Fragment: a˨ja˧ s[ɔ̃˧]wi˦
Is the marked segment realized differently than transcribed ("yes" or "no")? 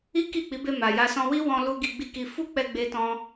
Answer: no